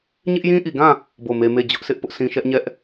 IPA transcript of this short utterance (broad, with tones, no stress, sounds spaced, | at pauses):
ɲ ɪ˦ ʔ j ĩ˦ ʔ i˨ ɡ ã˦˨ | b o˦˨ m e˦ m e˦˨ d͡ʑ ʊ˦ ʔ sʰ ɪ˦ ʔ p ʊ˦ ʔ sʰ ĩ˦ ʃ ɛ˦ ʔ ɲ ɛ˦ ʔ